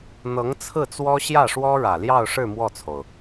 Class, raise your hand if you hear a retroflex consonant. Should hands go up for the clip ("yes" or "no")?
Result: yes